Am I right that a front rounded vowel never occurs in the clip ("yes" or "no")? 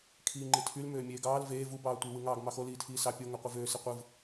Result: no